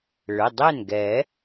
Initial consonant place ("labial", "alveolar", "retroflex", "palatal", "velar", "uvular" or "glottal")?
retroflex